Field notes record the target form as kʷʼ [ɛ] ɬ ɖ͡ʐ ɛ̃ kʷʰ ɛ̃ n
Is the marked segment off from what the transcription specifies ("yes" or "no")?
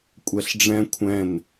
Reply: no